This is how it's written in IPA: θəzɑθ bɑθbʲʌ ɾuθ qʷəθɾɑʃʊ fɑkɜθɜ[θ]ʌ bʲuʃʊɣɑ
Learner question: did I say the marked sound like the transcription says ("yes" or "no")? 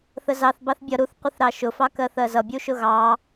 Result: no